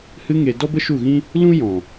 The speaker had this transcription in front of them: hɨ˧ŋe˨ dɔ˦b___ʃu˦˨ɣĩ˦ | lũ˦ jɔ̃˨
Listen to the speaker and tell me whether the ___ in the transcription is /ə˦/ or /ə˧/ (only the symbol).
ə˦